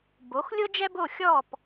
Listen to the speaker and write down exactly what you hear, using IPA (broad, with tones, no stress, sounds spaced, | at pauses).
b o˩˥ x lʲ ʊ˥ d͡ʒ ɛ˥ b o˥˩ xʲ ɔ˥˩ p